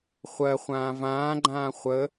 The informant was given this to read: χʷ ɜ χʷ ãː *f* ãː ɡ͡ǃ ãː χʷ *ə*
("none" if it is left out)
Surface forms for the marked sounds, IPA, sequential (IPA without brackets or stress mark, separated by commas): v, ə